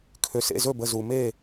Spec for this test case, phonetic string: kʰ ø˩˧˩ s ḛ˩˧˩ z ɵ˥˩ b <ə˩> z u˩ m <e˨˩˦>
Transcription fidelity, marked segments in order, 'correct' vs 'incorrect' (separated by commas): incorrect, incorrect